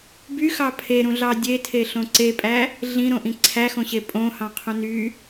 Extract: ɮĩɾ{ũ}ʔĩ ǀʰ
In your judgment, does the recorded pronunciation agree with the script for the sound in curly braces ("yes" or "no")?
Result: no